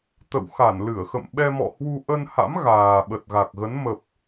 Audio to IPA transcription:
t̪ ə̰˧˨ w x a˧˩ n l ɨ˧˩ ə̯ x ə̰˧˨ m ɓ ɛ˧ m ɔ̰˧˨ h w u˧ ʔ ə˧ n h a̰˧˥ m ɣ aː˨˩ ɓ ə˨˩ t̚ ɣ a˨˩ k̚ ɣ ə˨˦ n m ə˨˩ p̚

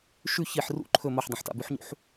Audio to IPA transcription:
ʃ ʉ ç i ħ r ṵ ǃʰ ɵ m ɐ ħ dˤ ẽ ħ t a̰ b ʉ ħ ɲ ṵ ħ

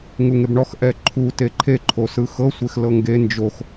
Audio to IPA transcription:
ŋ u ŋ e b ɳ ɔ x ʔ ɛ ǃʰ u t e ǃʰ e ǃʰ o s ɯ x ɤ sʷ e x l ɤ ŋ ɡ e n d͡ʒ o x

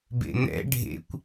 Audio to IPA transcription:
b ḛ n̪ ɛ̰ ɖʱ ḛ kʷ

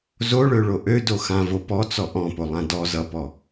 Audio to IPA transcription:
z o ɭ ø ɭ o ʔ ø d o x ã v o p ɔ t͡s ɔ ʔ ɔ̃ p o lˠ ã d ɔ z ʌ p ɔ

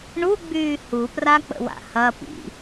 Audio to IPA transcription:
ɳ u ɡ͡b yː h u p r a k͡p ə̰ w a̰ h ɐ p ḭ

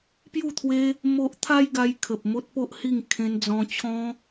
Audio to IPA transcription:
p j u˥˧ t̪ʰ w e˦ | m o˦ ʔ t̪ʰ a˦ j ɡ a˧ j kʰ ə˨ p̚ m o˦ t̚ p o˦ ʔ h i˥˧ ŋ kʰ ẽ˧ n d͡z ɔ̃˧ t͡ɕʰ ɔ̃˦

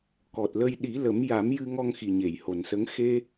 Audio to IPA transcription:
k ɔ˨˩ t̚ l ə˧ j ɗ i˨˩˦ l ə˨˩˦ m j a˨˩˦ m j ɨ˧ ŋ ɔ˧ ŋ x i˨˩ ɲ e˨˩˨ j h o˨˩ n s ə˧˥ ŋ x e˧

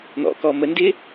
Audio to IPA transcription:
n̪ ɔ̰ k ɔ m ə n d ɪ

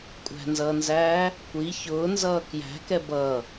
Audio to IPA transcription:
kʷʼ æ̤ n z ʌː n z æː | kʷ i ç ʊː n z ʌː k j æ̤ k ɛ b ʌ

